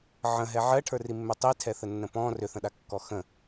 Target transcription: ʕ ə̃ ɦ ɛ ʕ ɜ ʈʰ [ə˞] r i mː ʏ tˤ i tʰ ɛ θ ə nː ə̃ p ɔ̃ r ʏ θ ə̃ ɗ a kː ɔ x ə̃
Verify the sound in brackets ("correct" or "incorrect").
correct